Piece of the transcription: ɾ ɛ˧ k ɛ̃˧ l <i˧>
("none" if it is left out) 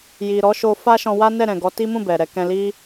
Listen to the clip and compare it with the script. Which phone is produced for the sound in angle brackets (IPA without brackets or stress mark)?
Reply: i˦